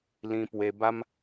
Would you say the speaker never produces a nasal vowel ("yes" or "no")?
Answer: no